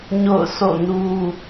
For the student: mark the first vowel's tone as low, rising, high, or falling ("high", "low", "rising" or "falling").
falling